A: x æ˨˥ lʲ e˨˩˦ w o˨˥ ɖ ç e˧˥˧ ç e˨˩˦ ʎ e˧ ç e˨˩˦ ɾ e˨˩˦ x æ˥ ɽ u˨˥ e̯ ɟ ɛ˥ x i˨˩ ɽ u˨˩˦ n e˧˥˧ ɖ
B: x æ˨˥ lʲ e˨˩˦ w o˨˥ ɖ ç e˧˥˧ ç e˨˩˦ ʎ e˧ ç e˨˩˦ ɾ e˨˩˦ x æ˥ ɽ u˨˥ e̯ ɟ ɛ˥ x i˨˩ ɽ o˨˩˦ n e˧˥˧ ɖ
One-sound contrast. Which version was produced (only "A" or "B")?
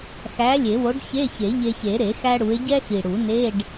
A